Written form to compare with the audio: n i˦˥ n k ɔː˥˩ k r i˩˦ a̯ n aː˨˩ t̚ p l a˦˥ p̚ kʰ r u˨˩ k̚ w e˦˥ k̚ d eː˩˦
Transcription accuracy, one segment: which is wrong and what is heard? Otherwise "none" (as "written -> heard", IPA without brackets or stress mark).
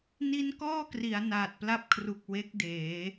none